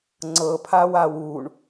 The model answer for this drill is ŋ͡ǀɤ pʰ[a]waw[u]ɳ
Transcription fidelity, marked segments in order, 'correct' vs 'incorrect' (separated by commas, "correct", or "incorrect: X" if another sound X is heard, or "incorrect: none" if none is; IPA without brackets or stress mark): correct, correct